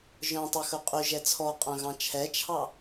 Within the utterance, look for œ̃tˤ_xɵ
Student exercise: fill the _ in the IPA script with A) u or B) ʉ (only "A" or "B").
B